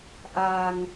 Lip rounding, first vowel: unrounded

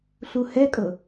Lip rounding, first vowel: rounded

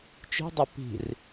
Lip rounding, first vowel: unrounded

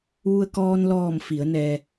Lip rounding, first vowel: rounded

